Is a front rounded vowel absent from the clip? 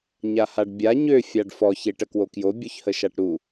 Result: no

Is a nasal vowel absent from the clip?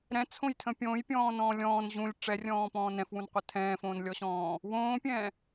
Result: no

